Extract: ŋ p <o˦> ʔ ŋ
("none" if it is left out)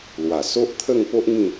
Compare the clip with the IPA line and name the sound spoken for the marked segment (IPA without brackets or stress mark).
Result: o˦